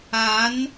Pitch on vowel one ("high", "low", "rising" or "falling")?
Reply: rising